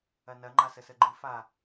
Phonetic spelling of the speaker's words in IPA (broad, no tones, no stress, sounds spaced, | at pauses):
ɐ n ɐ ŋ͡ǃ a s ə s ə ɡ͡ǃ ɨ f a